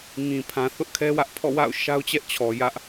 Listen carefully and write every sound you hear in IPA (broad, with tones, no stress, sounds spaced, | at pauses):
ŋ ĩ˨ pʰ ã˨ θ ʊ˦ ʔ kʰ ɛ˦ w ä˦ ʔ pʰ ɔ̰˦˨ w a̰˦˨ ʊ̯ ʃ a˦ ʊ̯ t͡ɕ ɛ˦ ʔ t͡ɕʰ ɔ˨ j ä˦ ʔ